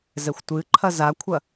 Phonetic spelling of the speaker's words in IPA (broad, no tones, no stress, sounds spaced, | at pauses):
z ɛ xʷ tʷ ɨ ǃʰ ɐ z a kʷʰ ɐ